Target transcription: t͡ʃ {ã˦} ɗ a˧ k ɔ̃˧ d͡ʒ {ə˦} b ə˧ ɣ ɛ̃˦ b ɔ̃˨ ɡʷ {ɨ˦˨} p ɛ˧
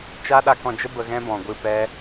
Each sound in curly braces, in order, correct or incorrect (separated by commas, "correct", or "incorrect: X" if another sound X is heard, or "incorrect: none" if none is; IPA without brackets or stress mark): incorrect: a˦, correct, correct